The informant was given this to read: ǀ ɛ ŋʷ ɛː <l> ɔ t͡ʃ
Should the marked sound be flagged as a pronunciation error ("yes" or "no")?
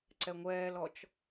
no